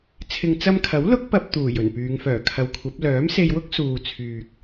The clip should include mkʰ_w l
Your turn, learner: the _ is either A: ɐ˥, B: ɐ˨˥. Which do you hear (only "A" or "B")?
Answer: B